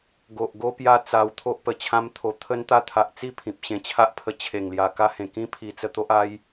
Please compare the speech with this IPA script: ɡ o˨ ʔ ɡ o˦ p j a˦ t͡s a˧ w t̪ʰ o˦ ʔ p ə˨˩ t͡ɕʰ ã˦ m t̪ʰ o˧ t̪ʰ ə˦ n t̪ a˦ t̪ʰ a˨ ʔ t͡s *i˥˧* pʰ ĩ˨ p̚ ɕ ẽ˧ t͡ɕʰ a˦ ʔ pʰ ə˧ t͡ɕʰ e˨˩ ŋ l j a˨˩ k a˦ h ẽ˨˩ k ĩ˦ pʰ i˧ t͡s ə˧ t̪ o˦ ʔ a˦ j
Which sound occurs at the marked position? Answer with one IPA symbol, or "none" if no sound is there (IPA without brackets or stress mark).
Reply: i˥˧